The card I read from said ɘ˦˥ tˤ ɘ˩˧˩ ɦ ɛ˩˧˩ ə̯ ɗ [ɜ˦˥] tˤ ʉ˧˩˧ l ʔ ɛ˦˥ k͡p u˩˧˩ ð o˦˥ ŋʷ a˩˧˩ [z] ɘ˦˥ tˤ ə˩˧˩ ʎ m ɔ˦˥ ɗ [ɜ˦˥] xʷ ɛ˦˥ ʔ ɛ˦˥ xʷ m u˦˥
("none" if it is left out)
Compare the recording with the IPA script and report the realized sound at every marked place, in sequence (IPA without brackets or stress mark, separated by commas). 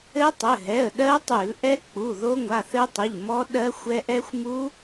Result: ɜ˦˥, θ, ɜ˦˥